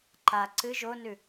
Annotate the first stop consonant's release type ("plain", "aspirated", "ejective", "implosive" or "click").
click